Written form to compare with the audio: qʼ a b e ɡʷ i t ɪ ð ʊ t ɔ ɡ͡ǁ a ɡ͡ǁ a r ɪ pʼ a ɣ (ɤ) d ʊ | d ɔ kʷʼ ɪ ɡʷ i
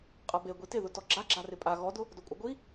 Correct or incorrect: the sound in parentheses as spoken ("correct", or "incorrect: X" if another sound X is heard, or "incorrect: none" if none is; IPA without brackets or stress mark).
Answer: incorrect: ɔ